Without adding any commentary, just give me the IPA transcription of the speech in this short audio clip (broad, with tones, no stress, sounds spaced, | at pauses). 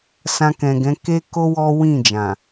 s ã˧ k ɛ̃˨ ɡ ɛ̃˨˦ k e˦ k o˦ w ɔ˦ w ĩ˦˨ d͡ʒ ã˨